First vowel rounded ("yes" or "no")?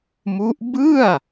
yes